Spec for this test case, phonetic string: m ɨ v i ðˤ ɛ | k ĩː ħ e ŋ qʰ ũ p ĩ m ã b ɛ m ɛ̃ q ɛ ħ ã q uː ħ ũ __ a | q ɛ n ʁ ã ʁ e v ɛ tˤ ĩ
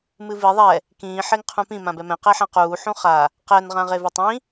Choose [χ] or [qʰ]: χ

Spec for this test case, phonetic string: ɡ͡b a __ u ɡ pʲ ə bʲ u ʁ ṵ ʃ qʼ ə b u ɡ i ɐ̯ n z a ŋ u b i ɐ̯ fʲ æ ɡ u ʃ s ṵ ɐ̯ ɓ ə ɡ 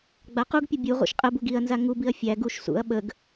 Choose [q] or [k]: q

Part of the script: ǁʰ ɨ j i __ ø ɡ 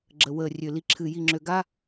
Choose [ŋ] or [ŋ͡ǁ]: ŋ͡ǁ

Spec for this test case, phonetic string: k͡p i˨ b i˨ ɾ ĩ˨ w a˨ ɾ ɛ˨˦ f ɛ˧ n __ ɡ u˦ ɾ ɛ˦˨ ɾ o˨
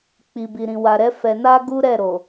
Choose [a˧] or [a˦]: a˦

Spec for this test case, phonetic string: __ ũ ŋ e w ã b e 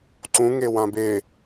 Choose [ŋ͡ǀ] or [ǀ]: ǀ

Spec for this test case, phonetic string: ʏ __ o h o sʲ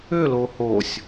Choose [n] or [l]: l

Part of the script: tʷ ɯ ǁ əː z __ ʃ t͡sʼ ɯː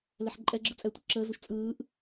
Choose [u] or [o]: u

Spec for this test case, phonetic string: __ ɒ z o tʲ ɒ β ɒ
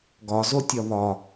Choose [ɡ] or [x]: ɡ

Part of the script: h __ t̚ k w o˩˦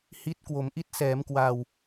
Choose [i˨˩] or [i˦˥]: i˦˥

